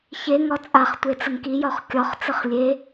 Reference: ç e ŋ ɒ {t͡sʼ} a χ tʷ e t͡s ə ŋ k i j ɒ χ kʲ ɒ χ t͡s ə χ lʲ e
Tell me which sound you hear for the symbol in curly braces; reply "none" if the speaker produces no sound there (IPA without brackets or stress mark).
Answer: t͡sʼ